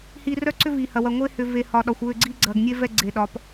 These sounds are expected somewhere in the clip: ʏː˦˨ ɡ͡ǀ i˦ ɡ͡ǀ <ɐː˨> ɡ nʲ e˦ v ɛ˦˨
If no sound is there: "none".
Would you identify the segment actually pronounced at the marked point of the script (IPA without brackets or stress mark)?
ɐː˨